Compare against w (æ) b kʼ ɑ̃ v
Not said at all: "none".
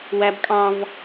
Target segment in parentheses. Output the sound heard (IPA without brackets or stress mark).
æ